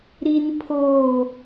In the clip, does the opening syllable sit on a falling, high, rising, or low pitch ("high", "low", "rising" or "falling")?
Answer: high